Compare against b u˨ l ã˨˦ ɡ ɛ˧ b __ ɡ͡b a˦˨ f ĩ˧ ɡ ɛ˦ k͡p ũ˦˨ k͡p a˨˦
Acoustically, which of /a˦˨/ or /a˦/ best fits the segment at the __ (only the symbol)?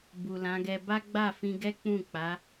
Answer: a˦